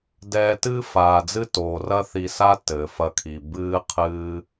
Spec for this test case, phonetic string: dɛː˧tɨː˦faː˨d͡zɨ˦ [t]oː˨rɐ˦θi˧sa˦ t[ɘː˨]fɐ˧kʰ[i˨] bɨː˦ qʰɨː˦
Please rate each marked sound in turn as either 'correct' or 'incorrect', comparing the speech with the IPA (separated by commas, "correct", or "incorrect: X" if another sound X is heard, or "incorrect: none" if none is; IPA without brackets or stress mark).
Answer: correct, correct, correct